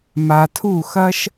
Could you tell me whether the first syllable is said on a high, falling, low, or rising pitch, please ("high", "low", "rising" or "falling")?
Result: low